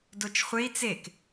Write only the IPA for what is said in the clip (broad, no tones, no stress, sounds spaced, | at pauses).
d o t͡ʃ χʷ e i̯ t͡s e k